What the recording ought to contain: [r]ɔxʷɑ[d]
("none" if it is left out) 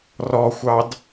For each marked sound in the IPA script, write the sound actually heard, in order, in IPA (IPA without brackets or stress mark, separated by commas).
r, d